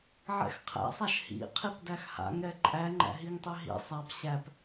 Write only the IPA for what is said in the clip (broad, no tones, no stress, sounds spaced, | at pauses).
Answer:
ʕ ɛ̰ x qʰ æ̰ sˤ a ʃ h ḭ qʰ i p d æ x h a̰ ŋ ɾ ɛ ǃʼ æ ŋ͡ǃ æ̰ ɦ i ŋ tˤ i ɦ ḭ sˤ a p ɕ æ p